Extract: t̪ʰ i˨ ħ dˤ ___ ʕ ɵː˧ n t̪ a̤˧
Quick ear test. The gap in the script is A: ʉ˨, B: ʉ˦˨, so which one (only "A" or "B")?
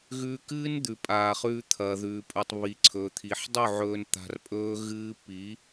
B